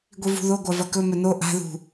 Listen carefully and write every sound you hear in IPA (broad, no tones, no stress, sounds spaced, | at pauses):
ɡʷ i v ṳ ð o ɡʷ a v ɐ k ɵ m ɵ n o ʔ a̤ ð ṳ